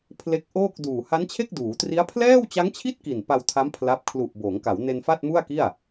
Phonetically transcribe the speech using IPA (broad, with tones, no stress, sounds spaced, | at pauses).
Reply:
pʰ l e˦˥ k̚ ʔ oː˥˩ k̚ d uː˨˩ h a˦˥ n t͡ɕʰ e˥˩ k̚ d uː˩˦ t r i˦˥ a̯ pʰ l ɛː˥˩ w t͡ɕ a˦˥ ŋ t͡ɕʰ i˥˩ t̚ k i˨˩ n p a˧ w tʰ a˦˥ m pʰ l a˦˥ p̚ kʰ l u˨˩ ʔ b oː˩˦ ŋ k a˩˦ w n e˧ n f a˥˩ t̚ m u˥˩ a̯ k i˥˩ a̯